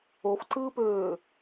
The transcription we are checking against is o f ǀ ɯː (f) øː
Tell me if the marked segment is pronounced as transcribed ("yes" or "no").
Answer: no